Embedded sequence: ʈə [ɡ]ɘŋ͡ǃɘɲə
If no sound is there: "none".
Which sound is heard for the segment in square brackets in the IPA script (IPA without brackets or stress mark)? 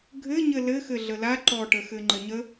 x